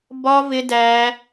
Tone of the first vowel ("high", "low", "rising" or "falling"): high